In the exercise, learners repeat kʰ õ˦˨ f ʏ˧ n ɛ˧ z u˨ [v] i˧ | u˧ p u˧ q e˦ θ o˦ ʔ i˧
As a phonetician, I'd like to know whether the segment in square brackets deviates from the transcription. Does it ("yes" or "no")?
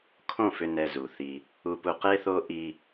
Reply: yes